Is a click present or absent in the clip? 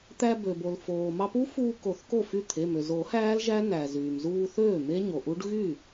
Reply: absent